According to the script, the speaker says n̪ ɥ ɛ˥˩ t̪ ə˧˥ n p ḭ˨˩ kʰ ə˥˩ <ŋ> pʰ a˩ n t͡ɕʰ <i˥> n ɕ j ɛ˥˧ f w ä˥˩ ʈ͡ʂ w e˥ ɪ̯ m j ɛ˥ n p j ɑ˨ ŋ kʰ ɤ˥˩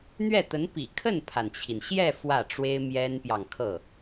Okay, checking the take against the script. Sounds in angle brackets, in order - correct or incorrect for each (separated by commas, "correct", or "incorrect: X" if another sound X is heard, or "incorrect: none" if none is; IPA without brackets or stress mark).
incorrect: n, incorrect: i˩